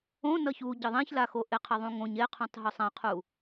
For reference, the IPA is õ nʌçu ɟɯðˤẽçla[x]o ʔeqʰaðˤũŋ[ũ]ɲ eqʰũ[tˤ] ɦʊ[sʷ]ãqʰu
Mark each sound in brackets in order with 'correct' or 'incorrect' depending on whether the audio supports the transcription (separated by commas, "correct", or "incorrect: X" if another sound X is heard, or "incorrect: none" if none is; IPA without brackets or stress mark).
correct, incorrect: õ, correct, incorrect: sˤ